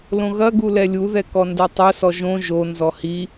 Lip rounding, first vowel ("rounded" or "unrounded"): rounded